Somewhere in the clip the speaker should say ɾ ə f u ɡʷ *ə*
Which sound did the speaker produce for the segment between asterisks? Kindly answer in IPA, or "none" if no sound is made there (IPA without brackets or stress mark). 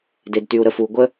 ə